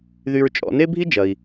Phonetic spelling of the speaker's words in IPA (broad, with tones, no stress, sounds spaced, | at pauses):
ð y˧ ɹ t͡ʃʼ ɔ̰˧ n e˥ bʱ i˥ d͡ʒ ɐ˩ i̯